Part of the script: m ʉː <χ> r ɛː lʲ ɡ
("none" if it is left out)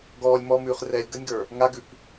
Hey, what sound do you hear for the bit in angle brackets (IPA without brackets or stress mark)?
χ